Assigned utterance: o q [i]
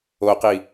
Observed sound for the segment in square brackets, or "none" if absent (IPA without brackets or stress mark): i